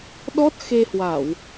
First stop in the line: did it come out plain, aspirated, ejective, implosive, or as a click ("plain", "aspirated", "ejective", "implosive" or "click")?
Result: implosive